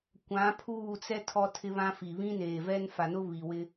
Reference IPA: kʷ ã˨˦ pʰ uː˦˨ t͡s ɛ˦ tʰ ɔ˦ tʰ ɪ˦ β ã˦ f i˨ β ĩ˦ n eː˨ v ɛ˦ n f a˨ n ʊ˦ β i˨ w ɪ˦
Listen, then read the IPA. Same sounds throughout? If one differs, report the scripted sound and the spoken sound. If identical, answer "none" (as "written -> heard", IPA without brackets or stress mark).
none